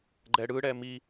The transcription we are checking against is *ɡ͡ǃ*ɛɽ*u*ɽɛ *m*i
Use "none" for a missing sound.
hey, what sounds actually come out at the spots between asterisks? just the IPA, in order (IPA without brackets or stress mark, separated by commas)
ɡ͡ǃ, ɯ, m